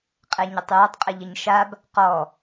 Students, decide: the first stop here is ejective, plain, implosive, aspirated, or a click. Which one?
ejective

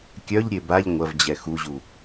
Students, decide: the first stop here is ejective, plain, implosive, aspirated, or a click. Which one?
plain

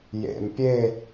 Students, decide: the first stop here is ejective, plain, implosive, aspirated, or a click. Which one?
plain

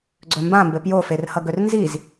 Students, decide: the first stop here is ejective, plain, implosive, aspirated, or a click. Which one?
click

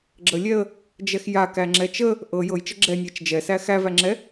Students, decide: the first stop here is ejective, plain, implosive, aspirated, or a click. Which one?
click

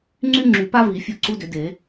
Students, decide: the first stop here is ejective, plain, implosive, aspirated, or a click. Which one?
click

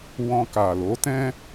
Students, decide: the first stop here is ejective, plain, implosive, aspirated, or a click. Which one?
plain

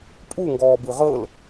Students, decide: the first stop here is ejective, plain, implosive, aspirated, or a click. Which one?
ejective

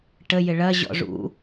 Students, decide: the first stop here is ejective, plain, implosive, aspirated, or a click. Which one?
plain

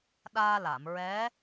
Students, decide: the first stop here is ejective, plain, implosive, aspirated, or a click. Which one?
implosive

